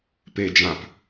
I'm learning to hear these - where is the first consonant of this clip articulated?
lips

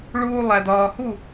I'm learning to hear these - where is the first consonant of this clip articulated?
retroflex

